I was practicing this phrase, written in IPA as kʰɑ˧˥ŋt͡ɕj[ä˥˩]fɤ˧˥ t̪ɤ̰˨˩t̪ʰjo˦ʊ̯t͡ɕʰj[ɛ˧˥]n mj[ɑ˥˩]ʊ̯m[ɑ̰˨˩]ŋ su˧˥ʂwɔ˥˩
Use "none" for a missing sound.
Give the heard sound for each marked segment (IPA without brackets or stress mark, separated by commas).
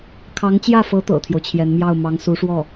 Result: ä˥˩, ɛ˧˥, ɑ˥˩, ɑ˧˥